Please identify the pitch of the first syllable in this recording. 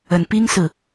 low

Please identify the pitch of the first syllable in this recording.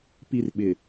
high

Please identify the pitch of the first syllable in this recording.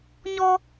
high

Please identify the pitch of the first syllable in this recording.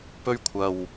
high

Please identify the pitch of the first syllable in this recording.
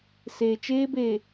low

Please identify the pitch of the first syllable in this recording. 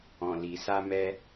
low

